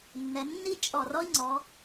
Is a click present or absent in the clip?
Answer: present